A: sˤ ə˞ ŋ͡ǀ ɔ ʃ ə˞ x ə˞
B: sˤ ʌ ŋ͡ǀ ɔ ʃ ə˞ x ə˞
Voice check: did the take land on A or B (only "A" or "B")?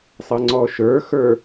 B